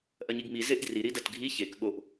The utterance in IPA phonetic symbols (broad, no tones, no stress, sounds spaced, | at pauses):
ʔ ɐ ɲ i ɡ m i z e ʔ d r i ɾ i d ɐ t ɡʱ i ç e k ɠ o ʔ